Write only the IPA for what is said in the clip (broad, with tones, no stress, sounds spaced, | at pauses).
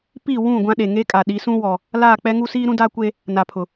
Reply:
p i˦˨ w ũ˦˨ ɡʷ ã˦ ɗ e˨ ŋ e˦ kʼ a˨ ɗ i˨˦ s ũ˦ w ɔ˨ | l aː˦˨ k͡p ɛ˦ ŋ u˦ s iː˦ ɾ ũ˦ d a˦ kʷ e˦ | n a˨ pʰ ʊ˨